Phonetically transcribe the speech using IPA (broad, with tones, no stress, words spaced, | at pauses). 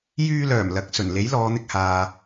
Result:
jyː˧lœː˨˩m lɐ˨˥k̚sɵ˨˩n le˨˥jlɔː˨˧n̪ɪ˧k̚haː˨